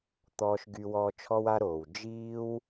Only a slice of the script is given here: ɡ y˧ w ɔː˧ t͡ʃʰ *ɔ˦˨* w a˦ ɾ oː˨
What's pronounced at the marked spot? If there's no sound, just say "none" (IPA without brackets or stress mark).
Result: ɔ˦